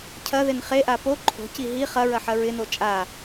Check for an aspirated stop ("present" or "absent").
present